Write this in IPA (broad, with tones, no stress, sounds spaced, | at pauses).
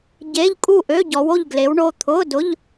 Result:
ɟ e˧˥˧ ʎ kʼ u˥˨ ʔ ø˧˥˧ ɟ ɔ˨˦ w o˥˨ ʎ ɡ l e˨˦ w ɳ o˩˧˩ t̪ʰ ʊ˧˥˧ d ʊ˧˥˧ ʎ